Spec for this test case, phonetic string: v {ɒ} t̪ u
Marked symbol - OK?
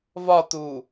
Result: yes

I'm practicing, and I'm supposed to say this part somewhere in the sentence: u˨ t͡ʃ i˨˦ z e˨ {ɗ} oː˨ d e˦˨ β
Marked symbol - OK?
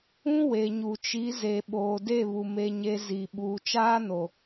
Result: no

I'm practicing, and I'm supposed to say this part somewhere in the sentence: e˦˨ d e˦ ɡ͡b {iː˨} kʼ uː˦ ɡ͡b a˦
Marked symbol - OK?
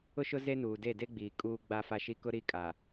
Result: yes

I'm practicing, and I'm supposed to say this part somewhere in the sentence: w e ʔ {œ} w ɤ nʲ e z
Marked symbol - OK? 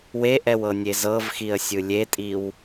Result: no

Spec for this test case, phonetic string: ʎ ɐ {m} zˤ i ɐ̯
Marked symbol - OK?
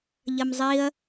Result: yes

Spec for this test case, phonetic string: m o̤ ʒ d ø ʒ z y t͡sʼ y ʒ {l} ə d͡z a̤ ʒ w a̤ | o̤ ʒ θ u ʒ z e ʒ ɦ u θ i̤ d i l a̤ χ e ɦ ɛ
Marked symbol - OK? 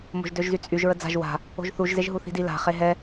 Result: no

